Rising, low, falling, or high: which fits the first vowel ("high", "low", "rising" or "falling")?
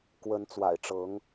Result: rising